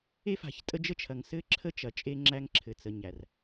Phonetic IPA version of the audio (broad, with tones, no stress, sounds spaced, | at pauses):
e˦ f a̤˨ ç tʼ ə˦ d͡ʒ ə˦ t͡ʃʰ ɐ˨ ŋ s ɘ˦ ǁʰ ə˦ t͡ʃ ɐ˨ t͡ʃʼ e˦ ŋ͡ǁ æ˦ ŋ ǁʰ ɘ˨ t͡s ə˨ ɲ æ˨ r